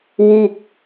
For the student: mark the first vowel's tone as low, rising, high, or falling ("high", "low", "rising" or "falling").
falling